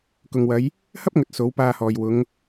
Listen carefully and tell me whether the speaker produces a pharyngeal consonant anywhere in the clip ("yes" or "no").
no